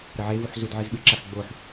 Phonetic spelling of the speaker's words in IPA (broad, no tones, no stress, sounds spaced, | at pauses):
ɾ ɐ ʕ e v u ħ z u d ʕ ɨ z ɓ ɨ ǁ a x ɡ͡b o ħ